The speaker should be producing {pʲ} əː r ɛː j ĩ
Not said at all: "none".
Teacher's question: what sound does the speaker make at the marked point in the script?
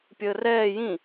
pʲ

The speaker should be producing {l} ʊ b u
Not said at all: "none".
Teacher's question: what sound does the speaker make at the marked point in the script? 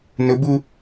n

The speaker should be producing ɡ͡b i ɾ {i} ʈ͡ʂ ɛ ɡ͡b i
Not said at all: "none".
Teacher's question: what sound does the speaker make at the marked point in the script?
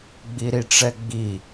i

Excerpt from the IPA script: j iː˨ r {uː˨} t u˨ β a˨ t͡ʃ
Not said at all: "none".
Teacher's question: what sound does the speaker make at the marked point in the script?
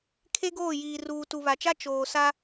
uː˨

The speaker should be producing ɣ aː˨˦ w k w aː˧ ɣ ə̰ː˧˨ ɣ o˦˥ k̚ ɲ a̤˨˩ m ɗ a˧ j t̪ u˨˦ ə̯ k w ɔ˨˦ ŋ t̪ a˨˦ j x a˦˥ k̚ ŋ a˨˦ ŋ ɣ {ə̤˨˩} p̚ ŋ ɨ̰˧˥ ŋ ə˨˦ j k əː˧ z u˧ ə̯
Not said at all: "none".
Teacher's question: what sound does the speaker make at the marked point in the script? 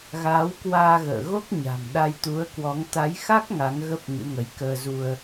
ə˦˥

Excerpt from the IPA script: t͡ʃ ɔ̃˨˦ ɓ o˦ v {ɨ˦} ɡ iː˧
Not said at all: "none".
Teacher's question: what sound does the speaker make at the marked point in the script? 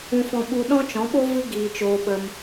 ɨ˦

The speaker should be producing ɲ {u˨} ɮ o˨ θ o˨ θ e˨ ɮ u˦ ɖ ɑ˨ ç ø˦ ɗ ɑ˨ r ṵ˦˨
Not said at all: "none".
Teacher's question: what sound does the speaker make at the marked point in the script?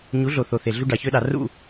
u˨˦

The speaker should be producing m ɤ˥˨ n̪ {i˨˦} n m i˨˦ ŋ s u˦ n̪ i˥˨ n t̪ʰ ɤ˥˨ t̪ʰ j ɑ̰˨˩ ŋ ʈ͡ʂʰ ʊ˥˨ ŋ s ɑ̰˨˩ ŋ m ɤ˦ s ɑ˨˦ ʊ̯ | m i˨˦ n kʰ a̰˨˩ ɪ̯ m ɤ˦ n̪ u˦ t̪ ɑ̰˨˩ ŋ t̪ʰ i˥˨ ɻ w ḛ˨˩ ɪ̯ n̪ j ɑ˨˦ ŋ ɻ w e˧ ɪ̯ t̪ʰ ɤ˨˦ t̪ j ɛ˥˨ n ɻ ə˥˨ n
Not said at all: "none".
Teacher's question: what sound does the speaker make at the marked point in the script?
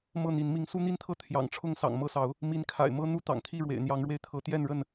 i˨˦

